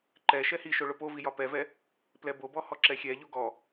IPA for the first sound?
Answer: ǃ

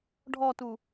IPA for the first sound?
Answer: ɖʱ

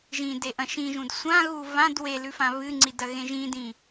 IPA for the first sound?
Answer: ʒ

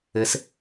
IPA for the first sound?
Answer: ɘ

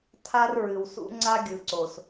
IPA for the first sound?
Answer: tʰ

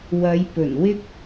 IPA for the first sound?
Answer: w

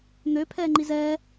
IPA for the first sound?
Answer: n̪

